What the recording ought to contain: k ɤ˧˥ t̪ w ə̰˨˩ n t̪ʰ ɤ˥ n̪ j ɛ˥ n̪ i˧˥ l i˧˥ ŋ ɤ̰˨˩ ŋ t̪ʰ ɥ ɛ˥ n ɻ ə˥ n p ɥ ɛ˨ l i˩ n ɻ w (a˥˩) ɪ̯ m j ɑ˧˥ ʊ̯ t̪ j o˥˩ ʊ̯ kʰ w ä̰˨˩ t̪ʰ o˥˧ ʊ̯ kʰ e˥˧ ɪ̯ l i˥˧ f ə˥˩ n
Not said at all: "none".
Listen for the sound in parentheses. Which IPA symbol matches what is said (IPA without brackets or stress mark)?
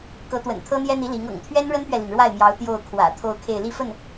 a˥˩